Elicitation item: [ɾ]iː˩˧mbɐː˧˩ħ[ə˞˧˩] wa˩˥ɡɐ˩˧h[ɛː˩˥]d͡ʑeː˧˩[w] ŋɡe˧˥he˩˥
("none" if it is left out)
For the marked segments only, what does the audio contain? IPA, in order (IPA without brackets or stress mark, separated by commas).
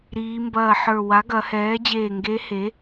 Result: ɾ, ə˞˧˩, ɛː˩˥, none